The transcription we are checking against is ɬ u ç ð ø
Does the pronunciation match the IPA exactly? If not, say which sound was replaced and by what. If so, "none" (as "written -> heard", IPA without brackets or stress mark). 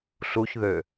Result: none